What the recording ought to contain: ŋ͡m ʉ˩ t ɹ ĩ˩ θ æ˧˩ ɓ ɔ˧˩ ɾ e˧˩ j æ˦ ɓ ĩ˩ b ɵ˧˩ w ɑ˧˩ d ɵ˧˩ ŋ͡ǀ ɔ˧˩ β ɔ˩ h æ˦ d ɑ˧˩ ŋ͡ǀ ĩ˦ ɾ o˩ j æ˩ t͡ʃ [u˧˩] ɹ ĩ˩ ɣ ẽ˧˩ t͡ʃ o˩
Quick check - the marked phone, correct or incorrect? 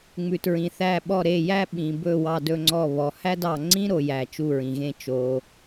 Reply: correct